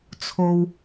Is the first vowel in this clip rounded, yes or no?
yes